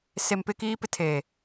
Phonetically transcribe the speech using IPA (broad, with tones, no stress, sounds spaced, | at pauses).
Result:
s e˨ m p ɪ˦ k iː˦ p ɪ˦ tʰ eː˨